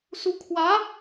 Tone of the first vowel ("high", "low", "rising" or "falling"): rising